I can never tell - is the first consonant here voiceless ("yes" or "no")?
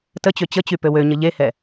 yes